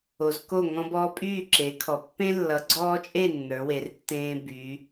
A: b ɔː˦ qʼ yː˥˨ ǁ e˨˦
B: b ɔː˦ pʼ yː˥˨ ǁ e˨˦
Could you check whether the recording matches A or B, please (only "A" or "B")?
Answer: B